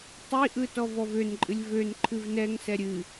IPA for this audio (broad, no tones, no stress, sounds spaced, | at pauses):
tˤ i ʔ ɯ t ɔ v ɔ v ø n ǃʼ ɨ lʲ v ø n ǃʰ ɨ v n ɛ ŋ s ɛ ɾʲ ɨ